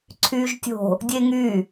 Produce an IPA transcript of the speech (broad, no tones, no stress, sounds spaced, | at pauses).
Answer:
ǀʰ yː ʒ tʲ o̤ | dʲ e ŋ y